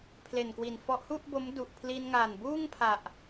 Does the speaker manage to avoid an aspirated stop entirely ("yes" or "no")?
no